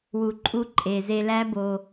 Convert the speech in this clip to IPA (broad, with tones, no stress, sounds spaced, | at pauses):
w u˨ ǃʼ u˧ ǃʼ e˨ z e˧ l æ˦ b o˧